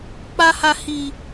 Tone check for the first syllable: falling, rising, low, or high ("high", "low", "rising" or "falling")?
high